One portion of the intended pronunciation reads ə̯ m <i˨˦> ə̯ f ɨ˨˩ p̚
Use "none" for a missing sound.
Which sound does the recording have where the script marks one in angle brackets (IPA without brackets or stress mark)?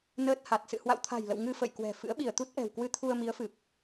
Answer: i˨˦